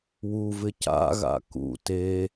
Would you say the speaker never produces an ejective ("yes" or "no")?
yes